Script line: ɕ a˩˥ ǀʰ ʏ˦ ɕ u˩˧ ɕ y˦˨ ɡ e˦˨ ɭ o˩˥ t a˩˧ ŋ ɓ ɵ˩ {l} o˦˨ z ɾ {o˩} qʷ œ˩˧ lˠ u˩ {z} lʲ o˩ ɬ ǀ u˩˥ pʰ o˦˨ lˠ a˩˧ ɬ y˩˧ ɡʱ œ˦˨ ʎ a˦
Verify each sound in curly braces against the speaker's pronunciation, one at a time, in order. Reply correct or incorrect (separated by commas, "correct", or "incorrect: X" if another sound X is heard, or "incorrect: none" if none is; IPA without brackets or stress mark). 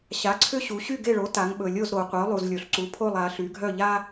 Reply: incorrect: lʲ, correct, correct